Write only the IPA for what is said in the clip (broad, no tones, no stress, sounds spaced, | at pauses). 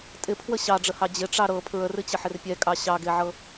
tʼ ɪ pʰ w ə ɕ ɑ ɖ͡ʐ ə h ɑ d͡ʑ ɪ ʈ͡ʂ ɑ ɾ ɤ pʰ ɹ ə r ɨ t͡ɕ ə ħ ɪ r pʲ ɛ kʼ ɑ ɕ ɑ ɡ e ʕ ɤ